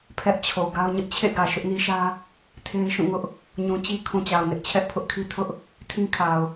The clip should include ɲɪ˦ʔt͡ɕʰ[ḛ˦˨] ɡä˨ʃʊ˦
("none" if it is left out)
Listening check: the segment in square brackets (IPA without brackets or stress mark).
ḛ˦˨